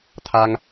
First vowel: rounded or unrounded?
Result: unrounded